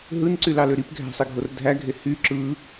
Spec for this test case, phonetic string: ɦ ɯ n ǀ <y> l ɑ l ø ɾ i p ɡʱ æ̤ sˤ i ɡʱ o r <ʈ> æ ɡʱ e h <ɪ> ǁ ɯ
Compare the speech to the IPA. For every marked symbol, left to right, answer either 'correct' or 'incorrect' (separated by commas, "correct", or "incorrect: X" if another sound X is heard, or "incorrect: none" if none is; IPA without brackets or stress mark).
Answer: correct, incorrect: dʱ, incorrect: y